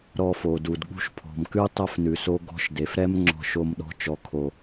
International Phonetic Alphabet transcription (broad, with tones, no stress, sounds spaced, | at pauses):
ɾ ɔ˧ f o˨ d u˨ d ɠ ṳ˧ ʃ pʰ ɔ̤˨ m k ʉ˦ tˤ o˦ f n ʉ˨ s o˦ ɡ ɔ̤˧ ʃ d e˨ f ɾ ɛ˦ m ŋ͡ǁ ɔ̤˧ ʃ o˧ m ɗ ɔ̤˧ t͡ʃ ɔ˨ kʰ o˨